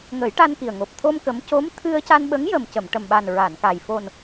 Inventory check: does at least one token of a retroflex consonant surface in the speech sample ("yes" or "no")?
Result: yes